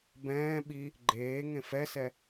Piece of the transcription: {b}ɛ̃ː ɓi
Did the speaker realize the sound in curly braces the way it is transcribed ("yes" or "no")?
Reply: yes